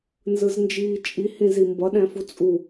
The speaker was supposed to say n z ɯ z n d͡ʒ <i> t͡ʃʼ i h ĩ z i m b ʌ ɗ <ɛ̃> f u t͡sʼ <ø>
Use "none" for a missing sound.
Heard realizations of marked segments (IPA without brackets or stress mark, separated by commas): iː, ɛ̃, u